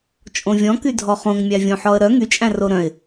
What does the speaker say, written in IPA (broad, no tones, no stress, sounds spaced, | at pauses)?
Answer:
t͡ʃʼ õ vʲ ɔ̃ k y dʱ ɔ χ õ ŋ mʲ æ vʲ õ ħ ɔ ə̯ ɾ œ ŋ y t͡ʃʼ æ̃ r o ɾ œ̃ ɪ̯